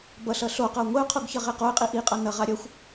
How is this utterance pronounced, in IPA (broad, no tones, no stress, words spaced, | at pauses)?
bʌɬʌ ɬoqʌʊ̯ ŋʷeʊ̯qʰoɡçʌ ʁeqoɪ̯qʼi ʔiqʼʌ nʌ ʁaɾʲʌxʷ